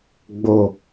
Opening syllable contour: low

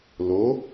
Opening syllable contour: rising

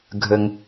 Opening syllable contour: low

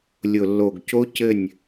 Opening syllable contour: low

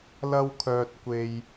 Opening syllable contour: high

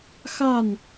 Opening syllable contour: falling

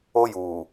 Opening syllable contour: high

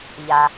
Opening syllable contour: low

